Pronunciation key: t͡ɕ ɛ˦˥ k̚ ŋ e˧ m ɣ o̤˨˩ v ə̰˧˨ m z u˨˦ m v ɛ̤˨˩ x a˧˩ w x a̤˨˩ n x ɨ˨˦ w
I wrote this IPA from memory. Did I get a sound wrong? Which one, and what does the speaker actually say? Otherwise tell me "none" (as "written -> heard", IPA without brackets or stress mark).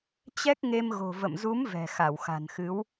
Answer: none